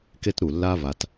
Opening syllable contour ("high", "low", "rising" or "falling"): high